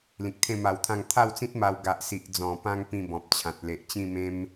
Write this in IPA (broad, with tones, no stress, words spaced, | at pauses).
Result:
lĩ˨k̚t̪ʰẽ˥˧ma˧wt̪ʰã˥˧ŋ t̪ʰa˥˧wt͡sĩ˦t̚ ma˧w ɡa˨ʔsi˨ʔd͡zɔ̃˨˩pã˧ŋ pĩ˥˧bɔ̃˨p̚t͡ɕʰã˨t̚ le˨ʔt͡ɕĩ˥˧mẽ˦m